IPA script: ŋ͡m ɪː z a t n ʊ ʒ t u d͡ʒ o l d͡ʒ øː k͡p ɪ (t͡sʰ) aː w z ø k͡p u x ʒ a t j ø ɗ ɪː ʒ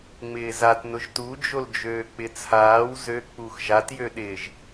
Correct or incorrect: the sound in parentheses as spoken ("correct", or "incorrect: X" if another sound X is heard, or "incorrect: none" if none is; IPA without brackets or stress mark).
correct